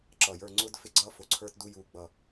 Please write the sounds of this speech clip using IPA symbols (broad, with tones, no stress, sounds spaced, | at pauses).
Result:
ǁ ʌ˧˩ j ə˞˥˧ ŋ͡ǀ ʊː˥ d f ɪ˥˧ ɡ͡ǀ ʌː˥ f ʊ˧˩ ǀʰ ə˞˥ t d u˥ j uː˥ ɡ͡b ʌ˥˧